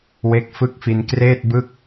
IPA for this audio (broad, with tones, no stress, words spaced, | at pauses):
we˦˥k̚fɯ˥˩k̚fi˧n kreː˥˩t̚bɯ˥˩k̚